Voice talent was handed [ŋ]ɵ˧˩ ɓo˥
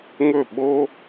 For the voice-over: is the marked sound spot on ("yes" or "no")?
yes